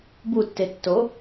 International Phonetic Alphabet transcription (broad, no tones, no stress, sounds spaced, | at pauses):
b u tː e tː o